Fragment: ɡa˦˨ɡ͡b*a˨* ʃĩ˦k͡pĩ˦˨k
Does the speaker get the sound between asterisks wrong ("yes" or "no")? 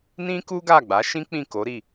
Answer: yes